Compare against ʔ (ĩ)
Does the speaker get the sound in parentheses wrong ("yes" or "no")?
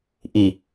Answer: yes